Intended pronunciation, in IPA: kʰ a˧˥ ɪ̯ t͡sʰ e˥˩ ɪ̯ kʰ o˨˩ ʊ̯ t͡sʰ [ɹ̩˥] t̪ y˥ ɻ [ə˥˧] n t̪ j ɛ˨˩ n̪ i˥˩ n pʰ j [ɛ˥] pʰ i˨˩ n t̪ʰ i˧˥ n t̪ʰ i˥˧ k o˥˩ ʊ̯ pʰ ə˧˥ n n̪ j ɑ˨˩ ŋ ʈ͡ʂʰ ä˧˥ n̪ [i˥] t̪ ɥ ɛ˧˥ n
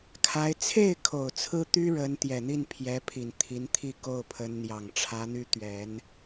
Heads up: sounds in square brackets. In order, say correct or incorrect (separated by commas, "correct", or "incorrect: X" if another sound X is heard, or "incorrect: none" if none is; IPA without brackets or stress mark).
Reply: correct, incorrect: ə˧˥, incorrect: ɛ˧˥, incorrect: y˥